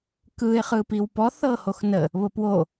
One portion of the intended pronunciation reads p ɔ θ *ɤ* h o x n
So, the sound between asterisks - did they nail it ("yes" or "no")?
yes